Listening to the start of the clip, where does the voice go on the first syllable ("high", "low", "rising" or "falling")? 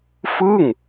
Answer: falling